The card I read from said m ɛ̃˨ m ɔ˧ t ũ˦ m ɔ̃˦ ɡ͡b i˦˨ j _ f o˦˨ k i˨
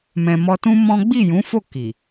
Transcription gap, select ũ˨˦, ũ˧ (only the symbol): ũ˨˦